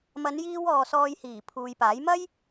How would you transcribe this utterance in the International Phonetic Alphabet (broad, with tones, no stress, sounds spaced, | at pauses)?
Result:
m ɐ˨˧ n j iː˧ w ɔː˨ s ɔː˧ j h iː˨˩ pʰ uː˨ j p aː˨˥ j m ɐ˥ j